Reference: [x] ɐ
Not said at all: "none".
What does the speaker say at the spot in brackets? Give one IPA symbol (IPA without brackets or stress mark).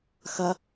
x